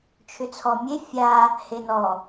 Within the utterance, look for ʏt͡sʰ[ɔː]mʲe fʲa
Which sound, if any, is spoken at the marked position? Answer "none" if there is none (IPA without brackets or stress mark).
ɔ